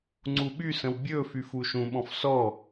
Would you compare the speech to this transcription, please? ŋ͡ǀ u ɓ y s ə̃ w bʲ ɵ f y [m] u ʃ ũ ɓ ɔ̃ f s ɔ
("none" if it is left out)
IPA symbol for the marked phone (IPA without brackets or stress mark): f